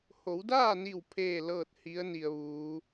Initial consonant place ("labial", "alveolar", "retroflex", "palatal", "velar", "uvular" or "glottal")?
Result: glottal